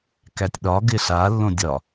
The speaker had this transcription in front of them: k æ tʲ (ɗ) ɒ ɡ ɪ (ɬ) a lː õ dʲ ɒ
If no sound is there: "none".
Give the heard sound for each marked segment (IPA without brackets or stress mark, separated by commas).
ɗ, ɬ